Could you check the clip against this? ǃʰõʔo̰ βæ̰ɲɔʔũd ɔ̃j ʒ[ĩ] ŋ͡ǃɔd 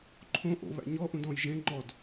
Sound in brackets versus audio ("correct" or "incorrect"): incorrect